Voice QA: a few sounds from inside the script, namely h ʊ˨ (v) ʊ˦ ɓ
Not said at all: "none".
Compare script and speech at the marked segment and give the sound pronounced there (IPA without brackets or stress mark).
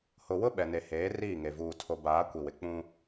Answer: w